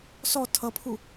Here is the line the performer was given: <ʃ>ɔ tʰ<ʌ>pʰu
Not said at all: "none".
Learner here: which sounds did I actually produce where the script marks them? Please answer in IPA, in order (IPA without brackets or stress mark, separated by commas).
s, ʌ